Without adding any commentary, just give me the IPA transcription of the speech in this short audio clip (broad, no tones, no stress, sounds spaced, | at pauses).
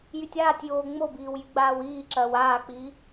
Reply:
j y tʲ aː tʲ j oː ŋ͡m o b iː w j y ɡ͡b aː w iː ǁ ɐː w aː k͡p iː